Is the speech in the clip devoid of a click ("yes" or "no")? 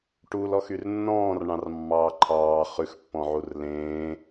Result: no